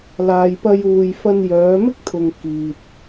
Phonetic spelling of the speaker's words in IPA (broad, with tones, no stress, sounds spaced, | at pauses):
l aː˨ j p ɐ˧ j uː˨ j f ɐ˧ n j œː˨˧ m ɪ˥ k̚ t̪ʰ ʊ˨ ŋ k iː˨ t̚